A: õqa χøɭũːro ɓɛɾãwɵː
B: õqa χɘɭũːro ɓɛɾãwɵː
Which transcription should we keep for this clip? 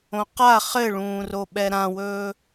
B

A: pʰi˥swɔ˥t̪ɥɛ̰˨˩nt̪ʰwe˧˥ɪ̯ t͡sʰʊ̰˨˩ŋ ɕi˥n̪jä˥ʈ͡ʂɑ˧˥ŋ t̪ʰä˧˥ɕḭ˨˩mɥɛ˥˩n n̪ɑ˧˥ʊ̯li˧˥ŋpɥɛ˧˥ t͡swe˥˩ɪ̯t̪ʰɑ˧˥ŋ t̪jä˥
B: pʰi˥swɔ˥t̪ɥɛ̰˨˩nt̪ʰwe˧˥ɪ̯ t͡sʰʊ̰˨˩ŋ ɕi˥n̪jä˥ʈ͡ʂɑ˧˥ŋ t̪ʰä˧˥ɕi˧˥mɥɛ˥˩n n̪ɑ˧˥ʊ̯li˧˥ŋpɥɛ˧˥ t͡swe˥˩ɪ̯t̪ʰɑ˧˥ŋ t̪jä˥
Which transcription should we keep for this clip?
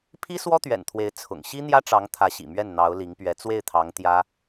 A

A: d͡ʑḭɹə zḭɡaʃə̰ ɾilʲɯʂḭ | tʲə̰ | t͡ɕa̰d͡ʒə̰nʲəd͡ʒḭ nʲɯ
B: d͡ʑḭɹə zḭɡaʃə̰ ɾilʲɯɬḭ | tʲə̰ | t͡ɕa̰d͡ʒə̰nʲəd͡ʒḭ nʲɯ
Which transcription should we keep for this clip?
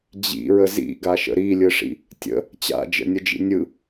A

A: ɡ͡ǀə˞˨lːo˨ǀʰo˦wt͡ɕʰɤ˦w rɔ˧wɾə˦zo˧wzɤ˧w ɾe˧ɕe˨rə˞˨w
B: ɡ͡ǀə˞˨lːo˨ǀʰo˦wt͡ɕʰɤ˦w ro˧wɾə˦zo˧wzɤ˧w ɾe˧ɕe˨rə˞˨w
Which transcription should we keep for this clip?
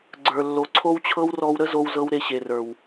A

